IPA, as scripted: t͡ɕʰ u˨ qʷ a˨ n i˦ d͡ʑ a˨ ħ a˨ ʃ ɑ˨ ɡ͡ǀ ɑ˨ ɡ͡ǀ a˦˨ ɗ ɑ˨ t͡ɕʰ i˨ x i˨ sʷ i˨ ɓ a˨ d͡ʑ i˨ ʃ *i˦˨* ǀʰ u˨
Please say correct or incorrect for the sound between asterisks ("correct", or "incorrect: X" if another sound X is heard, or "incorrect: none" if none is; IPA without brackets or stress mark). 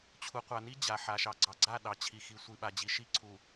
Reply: correct